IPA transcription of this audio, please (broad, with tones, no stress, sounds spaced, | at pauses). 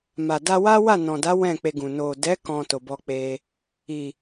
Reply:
m a˨ d a˧ w a˦ w a˦˨ n ɔ̃˨ d a˨˦ w ɛ̃˦˨ k͡p e˧ ɡ ũ˨ n o˨ d ɛ˨˦ k ɔ̃˧ t o˨ b ɔ˧ k͡p e˧ | i˨